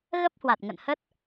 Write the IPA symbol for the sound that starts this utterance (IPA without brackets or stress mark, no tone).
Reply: ɣ